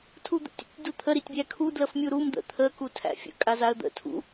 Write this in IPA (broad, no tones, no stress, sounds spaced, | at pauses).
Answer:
tʰ u d̪ ə̰ tʲ ə̰ tʲ d u t̪ʰ ə ɾ i tʲ bʲ æ kʰ u d l ə f mʲ u ɾ u m d̪ ə̰ t̪ʰ ə k u tʰ æ̰ fʲ ə̰ kʼ a z a ə̯ d̪ ə̰ tʰ ṵ